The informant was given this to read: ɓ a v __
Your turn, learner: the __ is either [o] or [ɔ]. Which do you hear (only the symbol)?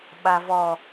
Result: ɔ